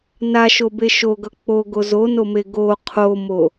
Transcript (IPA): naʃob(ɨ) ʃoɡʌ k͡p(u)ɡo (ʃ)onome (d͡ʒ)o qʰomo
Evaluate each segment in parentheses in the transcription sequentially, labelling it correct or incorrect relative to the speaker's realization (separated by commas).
incorrect, incorrect, incorrect, incorrect